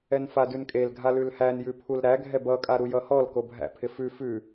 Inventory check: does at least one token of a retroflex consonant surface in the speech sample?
no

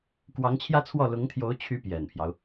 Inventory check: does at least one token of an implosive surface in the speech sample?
no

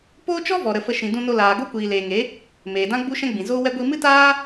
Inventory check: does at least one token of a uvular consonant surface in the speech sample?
no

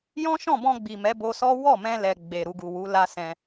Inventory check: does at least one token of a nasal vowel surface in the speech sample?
yes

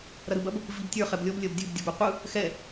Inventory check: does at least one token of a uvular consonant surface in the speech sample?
yes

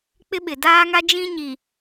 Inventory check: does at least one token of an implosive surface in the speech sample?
yes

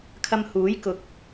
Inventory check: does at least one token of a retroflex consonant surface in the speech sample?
no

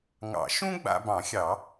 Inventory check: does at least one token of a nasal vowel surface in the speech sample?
yes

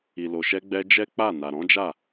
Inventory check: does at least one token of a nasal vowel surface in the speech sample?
yes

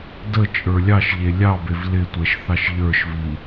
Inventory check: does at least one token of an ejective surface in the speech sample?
yes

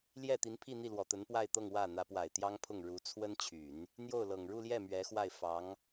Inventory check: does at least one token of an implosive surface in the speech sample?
no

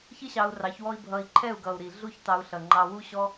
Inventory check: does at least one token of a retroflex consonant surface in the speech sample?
no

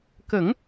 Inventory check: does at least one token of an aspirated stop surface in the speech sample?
no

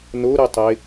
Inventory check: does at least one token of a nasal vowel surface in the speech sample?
no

